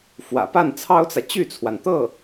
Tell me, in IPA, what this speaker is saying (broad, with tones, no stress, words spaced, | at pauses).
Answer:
fwä̰˨˩pa˥˩nt͡sʰɑ˥ʊ̯t͡sä˨ t͡ɕy˥˩t͡sʰwa˩nt̪ɤ˥˩